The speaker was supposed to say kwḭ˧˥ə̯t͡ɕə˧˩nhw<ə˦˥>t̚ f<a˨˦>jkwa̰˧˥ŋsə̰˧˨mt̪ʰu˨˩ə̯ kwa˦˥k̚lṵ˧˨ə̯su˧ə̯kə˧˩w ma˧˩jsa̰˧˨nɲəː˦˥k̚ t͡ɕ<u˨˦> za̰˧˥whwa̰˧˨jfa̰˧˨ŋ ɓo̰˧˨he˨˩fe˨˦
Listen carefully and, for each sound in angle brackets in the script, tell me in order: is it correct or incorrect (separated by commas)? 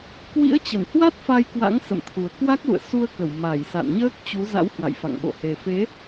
incorrect, incorrect, correct